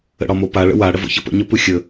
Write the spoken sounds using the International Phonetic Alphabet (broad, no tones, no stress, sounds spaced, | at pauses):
ə̰ ɽ ɒ m o p a ɭ ə̰ w a ɽ ə v o̰ ç ə p ə̰ ɲ ə p ɯ xʲ ə